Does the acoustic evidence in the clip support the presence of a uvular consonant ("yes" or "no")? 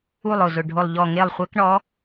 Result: yes